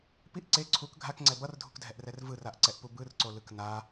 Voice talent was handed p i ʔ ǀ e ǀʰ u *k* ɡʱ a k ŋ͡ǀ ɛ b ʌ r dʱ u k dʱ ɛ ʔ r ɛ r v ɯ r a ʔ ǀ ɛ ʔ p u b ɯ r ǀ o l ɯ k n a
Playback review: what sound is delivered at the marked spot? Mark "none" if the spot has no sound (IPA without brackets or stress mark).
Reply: k